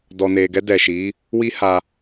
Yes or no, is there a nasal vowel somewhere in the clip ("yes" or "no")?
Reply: no